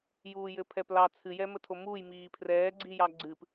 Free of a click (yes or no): no